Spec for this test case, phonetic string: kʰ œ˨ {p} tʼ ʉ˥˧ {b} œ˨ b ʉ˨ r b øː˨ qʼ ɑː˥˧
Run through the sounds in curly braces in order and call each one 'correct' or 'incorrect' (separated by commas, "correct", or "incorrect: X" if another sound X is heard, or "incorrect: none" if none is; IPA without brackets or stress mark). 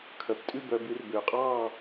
correct, correct